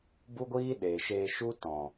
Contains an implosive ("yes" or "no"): yes